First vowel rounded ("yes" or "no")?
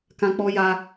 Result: no